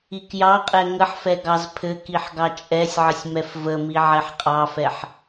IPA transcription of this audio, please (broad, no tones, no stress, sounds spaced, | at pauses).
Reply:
i k j ɑ qʼ ɛ ŋ ə ħ f ɛ ɡ ɑ z pʰ ɘ k i ħ ɡ ɑ t͡ʃʼ ɛ sʲ ʕ ə sʲ m ɛ f v ə m i ʕ ɛ ħ qʼ ɑ f ɛ ħ